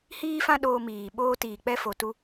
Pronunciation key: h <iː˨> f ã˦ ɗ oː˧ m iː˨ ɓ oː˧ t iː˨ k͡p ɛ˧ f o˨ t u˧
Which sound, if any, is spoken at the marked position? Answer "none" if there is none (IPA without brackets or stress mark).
iː˦